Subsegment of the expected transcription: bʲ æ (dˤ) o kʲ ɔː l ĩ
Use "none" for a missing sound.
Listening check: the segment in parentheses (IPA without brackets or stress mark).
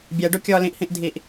ɖ